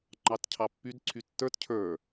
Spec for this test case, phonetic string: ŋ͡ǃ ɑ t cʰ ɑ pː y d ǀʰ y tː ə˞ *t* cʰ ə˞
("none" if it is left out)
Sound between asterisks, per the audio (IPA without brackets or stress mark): t